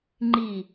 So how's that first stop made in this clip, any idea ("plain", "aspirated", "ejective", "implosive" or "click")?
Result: click